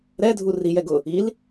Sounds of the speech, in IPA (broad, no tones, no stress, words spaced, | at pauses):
ɾɛ dʱurijɛ ɡʊ | il